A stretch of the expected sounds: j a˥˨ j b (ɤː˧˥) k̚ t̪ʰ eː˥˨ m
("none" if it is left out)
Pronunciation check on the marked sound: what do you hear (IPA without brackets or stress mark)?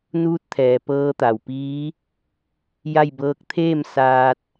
ɤː˧˥